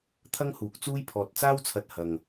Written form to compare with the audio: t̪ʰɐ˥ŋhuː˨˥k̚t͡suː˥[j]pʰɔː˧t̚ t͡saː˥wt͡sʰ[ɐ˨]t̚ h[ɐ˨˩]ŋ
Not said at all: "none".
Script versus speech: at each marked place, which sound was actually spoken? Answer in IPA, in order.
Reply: j, ɐ˧, ɐ˨

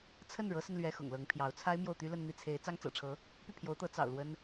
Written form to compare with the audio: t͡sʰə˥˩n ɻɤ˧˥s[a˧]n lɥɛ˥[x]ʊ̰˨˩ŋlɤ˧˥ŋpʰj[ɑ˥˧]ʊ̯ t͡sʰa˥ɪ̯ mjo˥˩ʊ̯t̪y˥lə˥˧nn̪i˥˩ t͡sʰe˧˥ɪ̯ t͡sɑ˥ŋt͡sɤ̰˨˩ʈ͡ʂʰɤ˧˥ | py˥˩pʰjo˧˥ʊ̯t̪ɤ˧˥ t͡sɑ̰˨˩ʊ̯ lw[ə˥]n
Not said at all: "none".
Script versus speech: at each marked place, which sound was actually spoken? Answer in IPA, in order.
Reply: ə˧, x, ɑ˧˥, ə˥

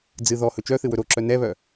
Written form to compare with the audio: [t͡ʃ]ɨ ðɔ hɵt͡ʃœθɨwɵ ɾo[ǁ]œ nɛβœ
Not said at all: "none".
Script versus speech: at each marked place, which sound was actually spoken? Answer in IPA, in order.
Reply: d͡z, ǁ

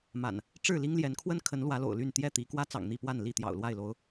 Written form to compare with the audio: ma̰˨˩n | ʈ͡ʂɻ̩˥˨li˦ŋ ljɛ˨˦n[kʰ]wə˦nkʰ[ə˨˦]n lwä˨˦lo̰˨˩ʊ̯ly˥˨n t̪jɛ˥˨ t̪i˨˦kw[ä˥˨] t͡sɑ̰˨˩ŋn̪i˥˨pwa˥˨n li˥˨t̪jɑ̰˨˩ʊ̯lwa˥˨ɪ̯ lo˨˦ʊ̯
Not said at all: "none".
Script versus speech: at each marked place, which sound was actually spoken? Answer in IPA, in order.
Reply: kʰ, ə˨˦, ä˦

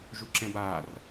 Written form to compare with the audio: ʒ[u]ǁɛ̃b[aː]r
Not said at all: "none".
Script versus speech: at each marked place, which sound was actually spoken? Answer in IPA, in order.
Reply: u, aː

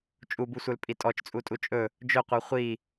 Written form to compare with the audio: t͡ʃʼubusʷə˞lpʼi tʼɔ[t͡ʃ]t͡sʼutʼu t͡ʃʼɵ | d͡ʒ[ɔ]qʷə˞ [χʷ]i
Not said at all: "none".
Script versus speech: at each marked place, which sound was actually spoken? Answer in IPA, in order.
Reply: t͡ʃ, ɵ, χʷ

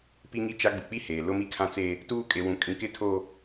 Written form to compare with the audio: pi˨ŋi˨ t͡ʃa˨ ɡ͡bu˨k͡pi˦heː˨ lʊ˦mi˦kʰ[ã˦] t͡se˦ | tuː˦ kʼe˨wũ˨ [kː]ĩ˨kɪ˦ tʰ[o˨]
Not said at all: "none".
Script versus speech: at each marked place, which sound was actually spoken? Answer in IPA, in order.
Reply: ã˦, kʼ, o˦

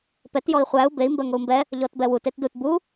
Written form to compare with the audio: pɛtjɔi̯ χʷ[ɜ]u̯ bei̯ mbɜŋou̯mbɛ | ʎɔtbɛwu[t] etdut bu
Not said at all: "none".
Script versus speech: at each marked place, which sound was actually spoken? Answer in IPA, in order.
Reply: æ, t

